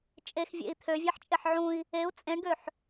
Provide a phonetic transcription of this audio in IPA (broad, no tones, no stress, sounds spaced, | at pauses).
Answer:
t͡ʃʼ e x vʲ ḛ i̯ t̪ʰ ø vʲ ɛ ħ t͡ʃʼ e ħ ʕ ũ i̯ | e u̯ t͡sʼ ẽ ɳ ɡ ø ħ